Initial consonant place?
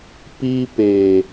labial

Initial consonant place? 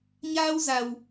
palatal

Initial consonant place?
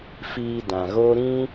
labial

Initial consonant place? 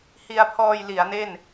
glottal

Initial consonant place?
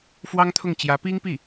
labial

